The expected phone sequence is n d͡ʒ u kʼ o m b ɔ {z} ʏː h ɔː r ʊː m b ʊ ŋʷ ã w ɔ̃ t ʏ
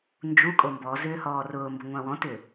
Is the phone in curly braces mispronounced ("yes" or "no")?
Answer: no